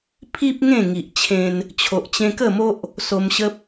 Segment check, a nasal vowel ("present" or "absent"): present